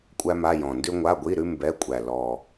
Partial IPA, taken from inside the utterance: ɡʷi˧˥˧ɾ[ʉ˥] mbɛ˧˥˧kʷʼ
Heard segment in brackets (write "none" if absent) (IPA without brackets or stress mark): ʉ˥